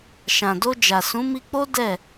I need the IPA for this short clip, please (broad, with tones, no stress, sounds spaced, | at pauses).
ʃ ã˨ d o˧ d͡ʒ a˨ s ũ˨˦ m i˧ k͡p o˦ d ɛ˦˨